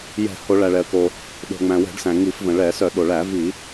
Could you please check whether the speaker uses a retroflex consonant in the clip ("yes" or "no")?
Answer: yes